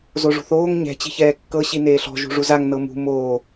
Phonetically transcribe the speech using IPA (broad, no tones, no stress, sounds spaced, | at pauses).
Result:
z o ʐ ṳ θ oː ŋ ɲ ɛ̤ t͡ɕ i̤ ç ɛː kː ɤ ɕ i n eː ɬ ɔ̤ ʒ ṳ ʐ u z a ŋ n ɤ m ṳ m oː